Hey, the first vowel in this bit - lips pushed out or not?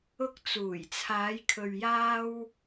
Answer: yes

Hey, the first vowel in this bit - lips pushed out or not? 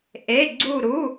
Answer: no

